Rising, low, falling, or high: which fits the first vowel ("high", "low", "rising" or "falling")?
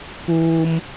high